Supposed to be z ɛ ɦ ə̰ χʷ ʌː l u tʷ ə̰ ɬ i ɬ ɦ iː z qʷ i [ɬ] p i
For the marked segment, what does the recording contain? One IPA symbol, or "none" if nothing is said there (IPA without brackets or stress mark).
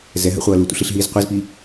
z